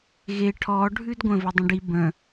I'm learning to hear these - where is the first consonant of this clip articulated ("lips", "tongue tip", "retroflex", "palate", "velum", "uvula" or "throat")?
velum